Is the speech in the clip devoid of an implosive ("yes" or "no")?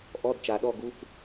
no